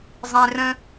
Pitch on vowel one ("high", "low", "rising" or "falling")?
low